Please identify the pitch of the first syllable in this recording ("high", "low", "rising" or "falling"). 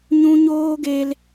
high